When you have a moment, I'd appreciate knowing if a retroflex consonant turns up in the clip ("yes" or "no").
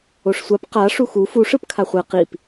yes